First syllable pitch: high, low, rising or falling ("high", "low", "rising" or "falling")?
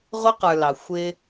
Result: high